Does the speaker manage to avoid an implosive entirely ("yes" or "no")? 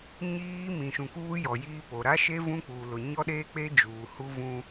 no